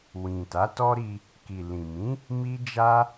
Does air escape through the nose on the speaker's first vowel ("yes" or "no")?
yes